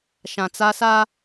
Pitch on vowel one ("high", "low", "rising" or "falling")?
low